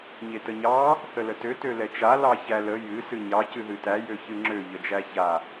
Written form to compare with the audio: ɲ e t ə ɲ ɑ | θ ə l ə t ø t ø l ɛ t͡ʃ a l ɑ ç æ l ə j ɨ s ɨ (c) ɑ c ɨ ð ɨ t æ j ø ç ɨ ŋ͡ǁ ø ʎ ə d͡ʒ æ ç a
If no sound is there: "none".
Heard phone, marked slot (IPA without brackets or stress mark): ɲ